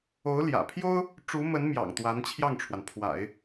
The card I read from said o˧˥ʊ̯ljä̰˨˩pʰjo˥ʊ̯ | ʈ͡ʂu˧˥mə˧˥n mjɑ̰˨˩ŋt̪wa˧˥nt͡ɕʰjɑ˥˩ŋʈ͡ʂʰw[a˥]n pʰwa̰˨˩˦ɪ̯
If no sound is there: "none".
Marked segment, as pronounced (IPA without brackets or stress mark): a˩